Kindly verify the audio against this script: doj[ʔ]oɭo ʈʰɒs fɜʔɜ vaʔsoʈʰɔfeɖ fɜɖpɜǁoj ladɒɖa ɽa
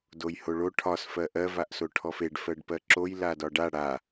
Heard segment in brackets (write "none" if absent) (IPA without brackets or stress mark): h